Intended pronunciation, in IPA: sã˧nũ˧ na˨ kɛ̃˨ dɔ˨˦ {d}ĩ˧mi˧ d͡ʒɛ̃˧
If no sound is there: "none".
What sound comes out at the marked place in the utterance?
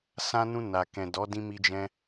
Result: d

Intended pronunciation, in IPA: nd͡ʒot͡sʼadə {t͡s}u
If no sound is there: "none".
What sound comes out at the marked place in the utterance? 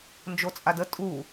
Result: tʼ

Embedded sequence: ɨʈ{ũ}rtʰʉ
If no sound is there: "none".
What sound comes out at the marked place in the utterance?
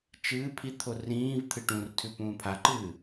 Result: ũ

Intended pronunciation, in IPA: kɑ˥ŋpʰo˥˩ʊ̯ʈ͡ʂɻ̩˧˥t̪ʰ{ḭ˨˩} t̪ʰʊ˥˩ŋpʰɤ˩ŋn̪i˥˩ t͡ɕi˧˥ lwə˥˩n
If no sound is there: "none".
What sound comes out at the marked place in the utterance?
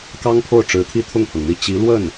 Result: i˥˧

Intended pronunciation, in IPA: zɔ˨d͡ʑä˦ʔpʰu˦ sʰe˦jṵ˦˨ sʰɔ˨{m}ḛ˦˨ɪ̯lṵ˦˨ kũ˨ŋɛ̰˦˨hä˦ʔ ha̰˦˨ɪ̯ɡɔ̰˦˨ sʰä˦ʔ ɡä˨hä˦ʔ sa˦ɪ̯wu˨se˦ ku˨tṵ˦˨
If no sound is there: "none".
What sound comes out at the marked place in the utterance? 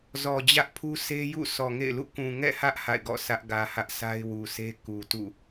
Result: ŋ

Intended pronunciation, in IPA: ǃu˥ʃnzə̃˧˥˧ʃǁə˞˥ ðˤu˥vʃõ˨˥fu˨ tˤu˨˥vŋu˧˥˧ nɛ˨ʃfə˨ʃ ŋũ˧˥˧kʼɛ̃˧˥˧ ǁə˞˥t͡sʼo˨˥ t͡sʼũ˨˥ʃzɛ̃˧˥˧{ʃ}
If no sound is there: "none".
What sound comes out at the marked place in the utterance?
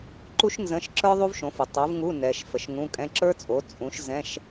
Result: ʃ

